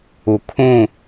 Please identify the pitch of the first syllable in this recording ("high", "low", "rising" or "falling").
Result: low